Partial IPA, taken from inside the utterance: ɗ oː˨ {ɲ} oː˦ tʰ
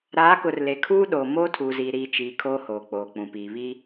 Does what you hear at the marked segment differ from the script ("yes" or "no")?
yes